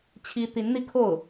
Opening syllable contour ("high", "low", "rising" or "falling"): high